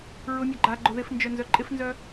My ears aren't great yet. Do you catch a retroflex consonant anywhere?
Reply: no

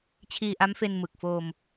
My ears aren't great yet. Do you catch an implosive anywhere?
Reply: no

